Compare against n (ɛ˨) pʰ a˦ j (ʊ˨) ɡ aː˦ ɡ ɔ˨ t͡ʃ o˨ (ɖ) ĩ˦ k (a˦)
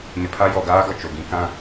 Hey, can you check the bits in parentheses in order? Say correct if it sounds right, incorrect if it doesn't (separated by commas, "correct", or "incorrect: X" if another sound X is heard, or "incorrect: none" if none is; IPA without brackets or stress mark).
incorrect: ɪ˨, incorrect: ɔ˨, incorrect: ɡ, incorrect: ã˦